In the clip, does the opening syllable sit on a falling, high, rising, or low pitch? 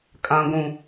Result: low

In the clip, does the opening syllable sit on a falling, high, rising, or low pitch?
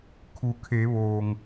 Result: low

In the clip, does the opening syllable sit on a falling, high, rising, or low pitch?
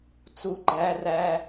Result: low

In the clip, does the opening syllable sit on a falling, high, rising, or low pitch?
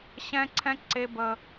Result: high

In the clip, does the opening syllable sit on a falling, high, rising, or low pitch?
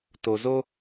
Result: low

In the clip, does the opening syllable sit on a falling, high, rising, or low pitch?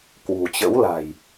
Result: low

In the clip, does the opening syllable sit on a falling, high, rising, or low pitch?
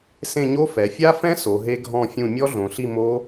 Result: falling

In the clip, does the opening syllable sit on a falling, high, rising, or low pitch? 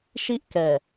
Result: high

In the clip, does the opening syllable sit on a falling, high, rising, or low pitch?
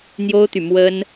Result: high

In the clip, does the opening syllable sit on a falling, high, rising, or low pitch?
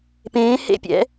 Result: rising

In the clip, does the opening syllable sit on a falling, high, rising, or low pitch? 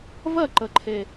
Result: falling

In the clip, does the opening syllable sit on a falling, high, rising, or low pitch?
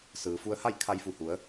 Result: low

